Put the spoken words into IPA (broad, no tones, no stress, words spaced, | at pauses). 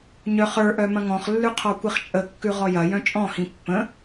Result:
ɲœχə˞ʔœ mɐ̃ŋɔ̃χlːʉ qʰɔkʷiχt͡ʃʼə kːʉʁɔjɐ jœ̃t͡ʃʼɔ̃hĩ pːə̃